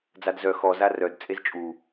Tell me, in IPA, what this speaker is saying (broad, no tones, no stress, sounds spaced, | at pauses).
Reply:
d͡z a d z œ x ɔ z a r œ d t͡sʼ e z t͡ʃʼ u